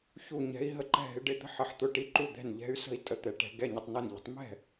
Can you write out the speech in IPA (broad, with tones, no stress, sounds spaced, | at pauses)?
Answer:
ç u˥˨ ɲ ɛ̤˧˥ i̯ ɦ ə˥˨ ǃ ɛ̤˥˨ ɦ ɪ˧˥ ɖ ɪ˧˥˧ t̪ ə̤˥˨ ħ ə˧˥ ħ t̪ ʊ˧˥˧ ʈ i˧˥˧ ǃ u˥˨ d̪ ɛ̤˥˨ n ʎ ɛ̤˧˥ y̯ s ə̤˥˨ i̯ tʼ ə˥˨ t̪ ɛ˧˥ ʈ ɛ̤˧˥ ɡ ɛ˧˥˧ ɲ ɪ˧˥˧ tˤ n ɛ˥˨ n ʎ ə̤˧˥ tˤ m ɛ̤˥˨